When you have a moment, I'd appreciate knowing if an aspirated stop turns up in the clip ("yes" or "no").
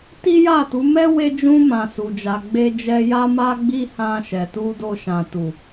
no